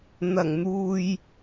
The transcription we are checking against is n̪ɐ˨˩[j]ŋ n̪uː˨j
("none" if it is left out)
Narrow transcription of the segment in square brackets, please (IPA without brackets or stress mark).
none